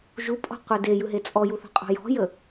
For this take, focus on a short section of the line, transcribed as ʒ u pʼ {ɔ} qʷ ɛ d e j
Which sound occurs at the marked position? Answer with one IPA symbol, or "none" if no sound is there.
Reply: ɔ̤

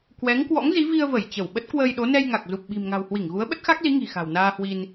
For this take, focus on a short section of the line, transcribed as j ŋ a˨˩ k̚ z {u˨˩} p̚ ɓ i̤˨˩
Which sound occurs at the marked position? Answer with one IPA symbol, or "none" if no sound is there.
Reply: u˨˩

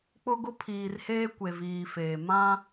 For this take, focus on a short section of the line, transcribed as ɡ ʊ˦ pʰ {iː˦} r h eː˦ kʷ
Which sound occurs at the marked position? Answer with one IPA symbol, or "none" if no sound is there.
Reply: iː˨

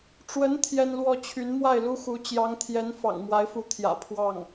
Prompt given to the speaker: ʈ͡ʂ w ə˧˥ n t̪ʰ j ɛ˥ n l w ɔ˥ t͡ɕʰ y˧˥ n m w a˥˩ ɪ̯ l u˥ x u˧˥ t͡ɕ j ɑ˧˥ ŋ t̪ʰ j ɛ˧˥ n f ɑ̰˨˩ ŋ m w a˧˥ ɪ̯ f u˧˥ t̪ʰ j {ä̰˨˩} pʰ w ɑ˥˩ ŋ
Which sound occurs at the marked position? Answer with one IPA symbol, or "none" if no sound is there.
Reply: ä̰˨˩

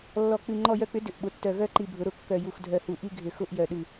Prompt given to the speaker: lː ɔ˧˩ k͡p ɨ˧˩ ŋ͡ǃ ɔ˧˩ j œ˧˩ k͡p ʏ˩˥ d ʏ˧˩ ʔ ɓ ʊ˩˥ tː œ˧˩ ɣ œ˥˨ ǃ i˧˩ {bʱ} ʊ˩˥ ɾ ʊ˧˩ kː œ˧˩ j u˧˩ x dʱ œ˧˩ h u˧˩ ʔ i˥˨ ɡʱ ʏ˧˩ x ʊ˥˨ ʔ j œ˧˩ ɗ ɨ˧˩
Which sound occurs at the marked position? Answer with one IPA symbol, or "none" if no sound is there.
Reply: bʱ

